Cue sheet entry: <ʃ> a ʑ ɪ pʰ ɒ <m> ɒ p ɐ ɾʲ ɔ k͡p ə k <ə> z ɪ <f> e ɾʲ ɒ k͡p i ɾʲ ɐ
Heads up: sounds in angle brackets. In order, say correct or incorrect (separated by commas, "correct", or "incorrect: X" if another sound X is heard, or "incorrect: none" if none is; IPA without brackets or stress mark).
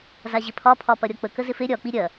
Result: incorrect: z, incorrect: pʰ, correct, correct